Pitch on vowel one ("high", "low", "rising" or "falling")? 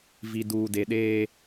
low